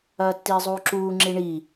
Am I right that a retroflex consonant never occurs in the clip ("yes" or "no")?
no